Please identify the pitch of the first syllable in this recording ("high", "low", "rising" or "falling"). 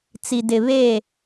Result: low